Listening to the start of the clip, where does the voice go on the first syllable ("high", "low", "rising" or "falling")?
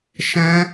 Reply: high